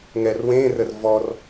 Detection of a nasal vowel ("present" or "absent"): present